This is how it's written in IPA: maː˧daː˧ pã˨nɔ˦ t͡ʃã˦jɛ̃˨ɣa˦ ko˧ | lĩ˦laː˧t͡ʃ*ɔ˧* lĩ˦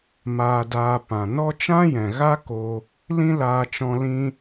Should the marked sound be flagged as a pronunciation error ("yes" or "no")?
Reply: yes